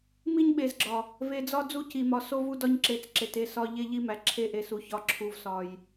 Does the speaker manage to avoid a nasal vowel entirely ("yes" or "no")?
yes